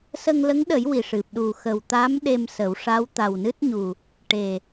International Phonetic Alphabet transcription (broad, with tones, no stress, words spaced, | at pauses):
sə˧ŋlə˧˥ŋɗə˨˩˦j wi˨˩ʂɨ˨˩p̚ ɗu˨˩xə˨˩wt̪a˧˥m ɗe˧msə˨˩˦wʂa˧˥w t̪a˨˩wnɨ˦˥t̚ɲu˨˩ | ʈe˨˩